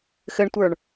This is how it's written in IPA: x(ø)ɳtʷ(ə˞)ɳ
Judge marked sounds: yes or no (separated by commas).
no, yes